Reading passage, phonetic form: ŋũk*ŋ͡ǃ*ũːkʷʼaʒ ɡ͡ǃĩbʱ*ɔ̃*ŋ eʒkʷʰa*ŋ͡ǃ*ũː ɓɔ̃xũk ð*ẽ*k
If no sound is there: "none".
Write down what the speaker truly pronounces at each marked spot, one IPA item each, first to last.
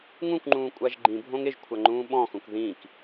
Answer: ŋ͡ǃ, õ, ŋ͡ǃ, ĩ

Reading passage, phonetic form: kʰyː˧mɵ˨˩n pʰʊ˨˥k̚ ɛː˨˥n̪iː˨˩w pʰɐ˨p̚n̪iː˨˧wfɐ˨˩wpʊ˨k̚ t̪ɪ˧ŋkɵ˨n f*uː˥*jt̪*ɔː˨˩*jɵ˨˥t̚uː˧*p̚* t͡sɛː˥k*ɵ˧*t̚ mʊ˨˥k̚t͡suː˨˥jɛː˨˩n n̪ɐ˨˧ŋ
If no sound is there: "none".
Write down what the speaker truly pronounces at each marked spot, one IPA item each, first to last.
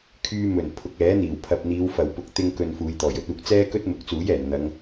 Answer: uː˨˧, ɔː˨˩, k̚, ɵ˥

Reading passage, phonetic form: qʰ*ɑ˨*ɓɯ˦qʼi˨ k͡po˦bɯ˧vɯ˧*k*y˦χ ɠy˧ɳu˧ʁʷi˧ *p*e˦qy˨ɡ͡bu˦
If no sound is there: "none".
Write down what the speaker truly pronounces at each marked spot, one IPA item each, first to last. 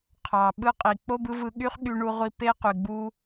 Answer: ɑ˨, ɠ, p

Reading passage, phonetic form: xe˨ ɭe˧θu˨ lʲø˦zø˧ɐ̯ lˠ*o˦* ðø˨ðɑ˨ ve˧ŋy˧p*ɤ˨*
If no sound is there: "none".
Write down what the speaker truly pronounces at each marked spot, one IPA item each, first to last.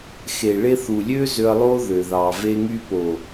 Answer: o˦, o˨

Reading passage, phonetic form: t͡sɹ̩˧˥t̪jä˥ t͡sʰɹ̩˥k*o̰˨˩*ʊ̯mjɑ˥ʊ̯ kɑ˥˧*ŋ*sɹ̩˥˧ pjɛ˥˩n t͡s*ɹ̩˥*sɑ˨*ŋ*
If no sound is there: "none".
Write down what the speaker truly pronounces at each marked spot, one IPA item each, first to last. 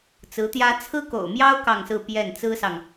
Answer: o̰˨˩, ŋ, ɹ̩˥, ŋ

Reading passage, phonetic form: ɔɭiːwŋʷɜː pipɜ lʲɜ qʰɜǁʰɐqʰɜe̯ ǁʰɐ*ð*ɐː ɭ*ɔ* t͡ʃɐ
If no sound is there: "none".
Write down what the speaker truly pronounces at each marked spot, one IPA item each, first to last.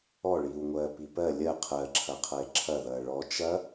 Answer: ð, ɔ

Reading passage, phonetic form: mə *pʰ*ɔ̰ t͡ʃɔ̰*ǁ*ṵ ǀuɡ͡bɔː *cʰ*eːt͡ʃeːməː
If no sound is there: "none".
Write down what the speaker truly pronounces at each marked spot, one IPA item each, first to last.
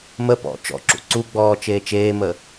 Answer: p, ǁ, t͡ʃ

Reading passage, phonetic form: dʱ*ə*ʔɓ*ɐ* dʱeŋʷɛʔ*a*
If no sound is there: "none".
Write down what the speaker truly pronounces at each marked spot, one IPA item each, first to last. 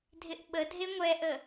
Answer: ɪ, ə, ə

